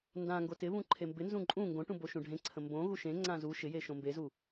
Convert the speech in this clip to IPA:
ndãŋɡo tɪβũ ǃʰembɪnzũ ǃʼũ ŋɡõʈũ boʃũɖʱẽǀʰə̃ mbõɣu ʃẽŋ͡ǀã zu ʃɪje ʃõmbezu

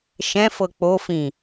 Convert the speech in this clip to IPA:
ʃɛ̃fɤ k͡pofĩ

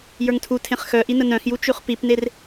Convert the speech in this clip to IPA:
jə˞ŋtʰu tʰẽχxœʔi nənœ̃xju t͡ʃʉχpipner

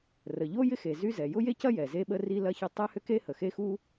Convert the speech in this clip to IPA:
rə˩ʎo˥ jɪ˥xe˩ zy˥zɛ˩ jʊ˥je˥cɐ˥ jɛ˩ze˥ɓə˥ri˥ lɐ˥çɐ˥ tˤɛ˥hʏ˥ke˥ hə˩xe˥ xu˥

